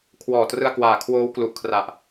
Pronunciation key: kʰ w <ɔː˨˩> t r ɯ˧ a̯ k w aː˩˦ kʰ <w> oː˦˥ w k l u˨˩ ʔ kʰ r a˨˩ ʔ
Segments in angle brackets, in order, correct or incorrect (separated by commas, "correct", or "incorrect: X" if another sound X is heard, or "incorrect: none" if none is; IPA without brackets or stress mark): correct, correct